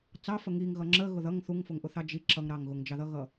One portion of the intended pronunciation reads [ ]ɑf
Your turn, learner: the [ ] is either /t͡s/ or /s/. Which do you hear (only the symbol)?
t͡s